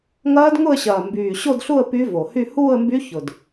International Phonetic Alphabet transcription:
ŋɐː˦˥dŋʊ˥˧ə̯ɕɐː˨˩ mbyː˨˩ɕo˥˧dɬu˥˧ə̯ py˦˥vo˨˩hy˥˧ huː˥˧ə̯mby˦˥ çʊ˨˩d

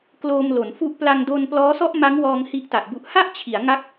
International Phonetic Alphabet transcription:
kloː˧mlo˩˦nfu˦˥ʔ pla˧ŋdo˧n plɔː˦˥sɔ˥˩ʔ ma˦˥ŋwɔː˧ŋ hi˥˩ʔta˨˩ʔbu˦˥ʔ ha˥˩ʔt͡ɕʰi˩˦a̯ ŋa˦˥k̚

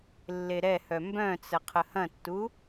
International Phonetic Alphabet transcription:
lːeɾɛhœ mbœ̃t͡sə qʰəhɐ̃tːu

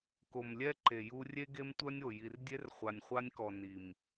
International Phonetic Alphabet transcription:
ko˨mlʲɛ˦ ǃe˨ju˦ rʲe˦ɡe˦mtʷœ˦nʲ o˨ji˨rdʲe˦r χʷa˨nʲχʷa˦nʲkɔ˨ ni˨m

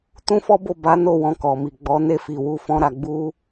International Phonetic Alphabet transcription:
tũ˦fɔ˦bo˦˨ ba˨˦no˦˨ wɔ̃˧kɔ˨mi˨ ɡ͡bɔ˨˦ ne˦˨fi˨wu˧fɔ̃˧ ɾa˨ ɡ͡bu˧

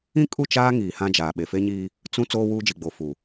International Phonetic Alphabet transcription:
ĩ˦kʼu˦˨t͡ʃaː˦ ŋiː˨hã˦d͡ʒaː˨ ɓe˨fe˦ɲiː˦ | t͡sũ˦ t͡soː˦wuː˦d͡ʒi˨ɡ͡bo˨ fu˨

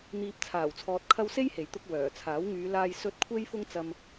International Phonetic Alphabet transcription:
n̪iː˨p̚t͡sʰaː˨˩wt͡sʰɔː˨t̚kʰɐ˧w se˥jhe˨˩jt̪ʊ˧k̚ wœː˨˩t͡sʰaː˨˥wŋyː˨˧ laː˨jsɵ˨˥t̚kʷʰe˧jfʊ˧ŋ t͡sɐ˧m

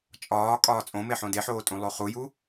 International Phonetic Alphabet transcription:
t͡ʃʼɒː kʼɒːt͡sʼõmeħõ deħoːtʼũ lˠoχuju

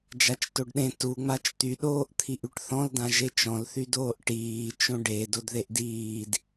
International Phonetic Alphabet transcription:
d͡ʒat͡ʃtoɖɗẽ tuŋ͡mat͡ʃ t̪yɗoːʔ t̪ʰiʔyʈθɔ̃ldã ʒet͡ʃɔ̃lθydoːʔ ʈiːt͡ʃõ ɖe dodðeʔdiːd

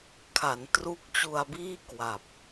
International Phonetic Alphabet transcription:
kʰa˩˦ntru˦˥k̚t͡ɕu˧a̯biː˥˩ kwa˨˩p̚

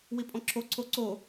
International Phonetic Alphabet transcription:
wipʼɔ̃ǁʰo ǀʰoǀo

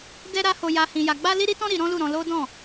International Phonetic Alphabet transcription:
dɛ˦ɾa˦ ho˧ja˧ hĩ˧ja˧ ɡ͡ba˦ li˦ɾi˦tɔ̃˦ ɾi˧ ɾɔ̃˦lu˦˨ɾɔ̃˧ lo˦dɔ̃˦˨

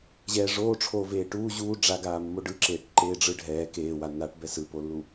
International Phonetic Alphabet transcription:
ʑɛːʐoːʈ͡ʂʰoː veːʈuː ʑuː ɖ͡ʐaɡaːmːo ɖɯǁeːʈ ǃeːɖ͡ʐɯɖʱɛː keːwanːaːʈbɛ sɯpolːu

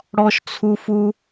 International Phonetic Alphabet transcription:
ɽɔ˧ʃt͡sʰu˧ fu˧

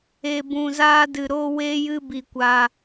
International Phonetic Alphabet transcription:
e˧bũ˧zaː˦dɨ˧ ɾoː˦weː˦jɨ˦ bi˧kʷa˧

